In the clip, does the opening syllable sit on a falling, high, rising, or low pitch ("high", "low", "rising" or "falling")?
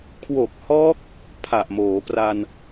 low